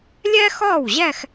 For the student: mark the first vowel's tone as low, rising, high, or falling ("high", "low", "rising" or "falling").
high